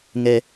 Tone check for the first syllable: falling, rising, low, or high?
low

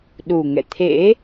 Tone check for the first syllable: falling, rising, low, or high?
low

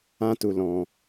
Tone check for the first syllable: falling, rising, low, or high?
high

